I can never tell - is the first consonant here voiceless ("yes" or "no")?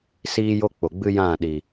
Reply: yes